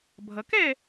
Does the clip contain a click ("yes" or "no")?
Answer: no